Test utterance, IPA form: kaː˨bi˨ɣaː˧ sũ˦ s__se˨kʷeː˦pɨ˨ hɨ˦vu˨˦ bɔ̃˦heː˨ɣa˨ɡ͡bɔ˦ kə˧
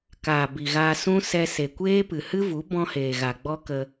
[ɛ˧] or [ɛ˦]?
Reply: ɛ˧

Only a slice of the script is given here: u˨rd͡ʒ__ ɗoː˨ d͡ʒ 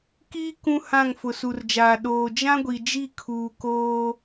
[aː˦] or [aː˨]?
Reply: aː˨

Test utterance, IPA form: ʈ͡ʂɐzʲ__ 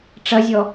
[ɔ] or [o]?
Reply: ɔ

